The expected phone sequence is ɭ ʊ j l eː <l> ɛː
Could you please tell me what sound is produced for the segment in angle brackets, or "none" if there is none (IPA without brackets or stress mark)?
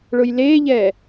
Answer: ʎ